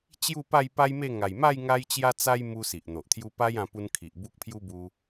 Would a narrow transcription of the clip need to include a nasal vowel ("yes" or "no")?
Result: yes